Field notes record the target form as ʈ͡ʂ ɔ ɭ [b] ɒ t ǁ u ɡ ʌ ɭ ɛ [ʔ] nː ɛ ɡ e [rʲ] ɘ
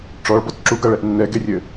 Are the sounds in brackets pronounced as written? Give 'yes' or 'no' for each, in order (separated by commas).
yes, yes, yes